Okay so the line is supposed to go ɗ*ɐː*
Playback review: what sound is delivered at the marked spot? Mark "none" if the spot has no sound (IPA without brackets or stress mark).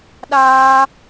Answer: aː